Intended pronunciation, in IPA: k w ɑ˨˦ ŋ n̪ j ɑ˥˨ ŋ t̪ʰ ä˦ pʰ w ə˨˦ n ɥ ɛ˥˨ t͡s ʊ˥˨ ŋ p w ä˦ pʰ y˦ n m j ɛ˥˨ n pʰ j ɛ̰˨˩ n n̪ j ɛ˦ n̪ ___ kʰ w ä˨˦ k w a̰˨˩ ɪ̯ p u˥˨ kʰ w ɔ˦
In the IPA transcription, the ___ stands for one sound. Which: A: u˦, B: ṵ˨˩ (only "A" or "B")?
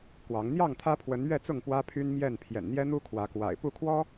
A